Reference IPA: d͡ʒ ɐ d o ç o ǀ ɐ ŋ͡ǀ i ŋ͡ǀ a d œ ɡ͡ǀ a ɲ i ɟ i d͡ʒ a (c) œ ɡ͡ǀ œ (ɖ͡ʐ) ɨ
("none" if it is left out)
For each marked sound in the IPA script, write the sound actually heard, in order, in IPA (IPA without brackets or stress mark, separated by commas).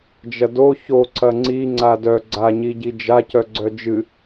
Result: c, d͡ʒ